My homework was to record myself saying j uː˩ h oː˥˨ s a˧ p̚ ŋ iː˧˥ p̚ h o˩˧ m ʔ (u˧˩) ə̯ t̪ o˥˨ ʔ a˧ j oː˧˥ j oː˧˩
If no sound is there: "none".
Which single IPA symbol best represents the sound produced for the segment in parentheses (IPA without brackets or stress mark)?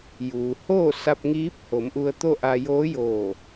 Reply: u˧